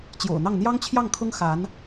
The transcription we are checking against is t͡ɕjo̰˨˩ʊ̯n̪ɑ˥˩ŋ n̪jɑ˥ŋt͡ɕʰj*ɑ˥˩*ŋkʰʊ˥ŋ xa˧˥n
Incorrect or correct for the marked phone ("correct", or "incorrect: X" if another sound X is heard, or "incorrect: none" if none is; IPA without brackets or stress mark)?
correct